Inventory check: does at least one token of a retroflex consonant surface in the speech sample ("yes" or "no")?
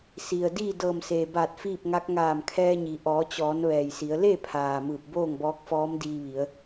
no